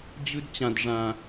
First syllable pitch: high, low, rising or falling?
high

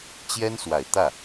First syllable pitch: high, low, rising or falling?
high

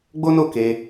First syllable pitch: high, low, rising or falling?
high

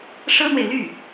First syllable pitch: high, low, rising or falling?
high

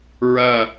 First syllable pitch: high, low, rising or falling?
falling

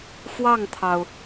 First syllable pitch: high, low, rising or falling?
falling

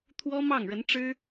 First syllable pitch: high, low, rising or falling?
high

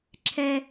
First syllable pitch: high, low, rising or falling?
high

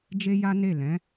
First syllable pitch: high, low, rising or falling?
high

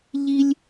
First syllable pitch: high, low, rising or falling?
high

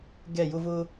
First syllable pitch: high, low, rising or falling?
falling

